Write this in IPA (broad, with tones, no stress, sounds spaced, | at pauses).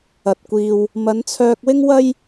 ɐ˨ t̚ kʷ iː˧ w | m ɐ˨˧ n t͡sʰ œː˧ k̚ w ɪ˥ ŋ w ɐ˥ j